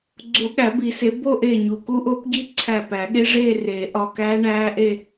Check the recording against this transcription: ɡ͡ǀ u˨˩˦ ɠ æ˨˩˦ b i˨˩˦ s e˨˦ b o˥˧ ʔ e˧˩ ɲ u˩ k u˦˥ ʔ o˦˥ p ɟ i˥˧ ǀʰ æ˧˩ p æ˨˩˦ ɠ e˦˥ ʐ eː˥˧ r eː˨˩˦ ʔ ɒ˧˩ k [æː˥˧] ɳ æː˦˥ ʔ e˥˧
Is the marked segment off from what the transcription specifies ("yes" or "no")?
yes